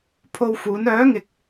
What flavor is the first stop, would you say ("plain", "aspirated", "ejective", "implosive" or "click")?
aspirated